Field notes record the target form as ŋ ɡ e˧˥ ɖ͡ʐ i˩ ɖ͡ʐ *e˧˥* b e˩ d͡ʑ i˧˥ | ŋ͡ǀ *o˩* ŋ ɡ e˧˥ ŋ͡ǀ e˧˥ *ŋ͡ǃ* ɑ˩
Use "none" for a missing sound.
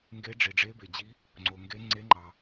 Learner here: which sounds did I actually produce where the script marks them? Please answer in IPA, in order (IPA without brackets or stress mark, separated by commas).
e˧˥, o˩, ŋ͡ǃ